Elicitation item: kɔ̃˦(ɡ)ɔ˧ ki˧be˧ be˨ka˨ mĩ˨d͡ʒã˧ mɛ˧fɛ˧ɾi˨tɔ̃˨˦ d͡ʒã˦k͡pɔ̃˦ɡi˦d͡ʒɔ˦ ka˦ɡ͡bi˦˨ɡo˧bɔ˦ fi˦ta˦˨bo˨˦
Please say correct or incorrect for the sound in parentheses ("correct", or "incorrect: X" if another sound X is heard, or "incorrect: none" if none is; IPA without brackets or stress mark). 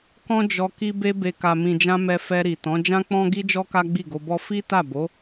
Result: incorrect: d͡ʒ